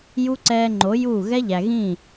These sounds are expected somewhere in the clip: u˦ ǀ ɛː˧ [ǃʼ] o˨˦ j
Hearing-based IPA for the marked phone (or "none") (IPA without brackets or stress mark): ŋ͡ǃ